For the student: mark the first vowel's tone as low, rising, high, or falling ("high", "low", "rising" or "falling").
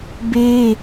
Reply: high